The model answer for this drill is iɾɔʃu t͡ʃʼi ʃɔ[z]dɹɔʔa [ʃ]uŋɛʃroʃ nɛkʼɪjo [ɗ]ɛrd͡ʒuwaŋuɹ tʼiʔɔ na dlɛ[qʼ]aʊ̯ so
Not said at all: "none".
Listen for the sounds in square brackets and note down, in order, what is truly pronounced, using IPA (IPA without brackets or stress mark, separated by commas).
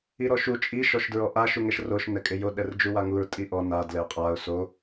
ʃ, ʃ, ɗ, qʼ